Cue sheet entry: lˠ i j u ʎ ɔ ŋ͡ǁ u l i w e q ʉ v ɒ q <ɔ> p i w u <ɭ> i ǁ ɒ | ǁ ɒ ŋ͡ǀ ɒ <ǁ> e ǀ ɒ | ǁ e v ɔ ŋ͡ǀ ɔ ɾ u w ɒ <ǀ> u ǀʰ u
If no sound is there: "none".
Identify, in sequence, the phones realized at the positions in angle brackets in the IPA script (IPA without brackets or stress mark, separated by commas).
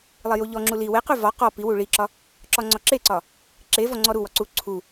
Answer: ɔ, ɭ, ǁ, ǀ